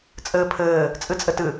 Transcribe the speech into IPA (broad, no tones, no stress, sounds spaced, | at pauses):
t͡sʼ ɘː pʰ ɘː | t͡sʼ ɨ t͡sʼ ɘ t ɨ